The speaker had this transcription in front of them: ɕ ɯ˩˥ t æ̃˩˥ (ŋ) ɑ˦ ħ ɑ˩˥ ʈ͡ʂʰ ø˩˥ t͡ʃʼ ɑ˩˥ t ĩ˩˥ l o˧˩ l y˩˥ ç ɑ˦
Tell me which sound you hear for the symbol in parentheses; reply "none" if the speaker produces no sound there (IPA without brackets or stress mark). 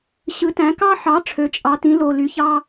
k